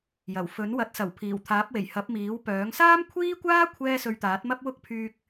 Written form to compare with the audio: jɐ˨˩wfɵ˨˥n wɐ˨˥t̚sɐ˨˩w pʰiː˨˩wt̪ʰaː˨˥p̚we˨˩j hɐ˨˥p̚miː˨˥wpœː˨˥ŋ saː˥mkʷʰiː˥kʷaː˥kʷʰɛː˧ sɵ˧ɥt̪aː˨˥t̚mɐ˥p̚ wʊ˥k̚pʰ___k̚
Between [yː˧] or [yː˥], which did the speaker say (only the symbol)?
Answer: yː˧